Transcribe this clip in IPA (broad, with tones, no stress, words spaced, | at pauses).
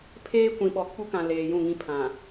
pʰeː˦kʷĩ˨ɓɔ˨ k͡pu˦kã˨ leː˨jũ˦˨ŋĩ˦pʰã˨